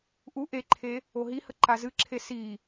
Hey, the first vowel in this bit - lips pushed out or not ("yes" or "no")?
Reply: yes